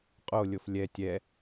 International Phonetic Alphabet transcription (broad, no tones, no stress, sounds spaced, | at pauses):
qʼ o lʲ o f lʲ ɛ tʲ ɛ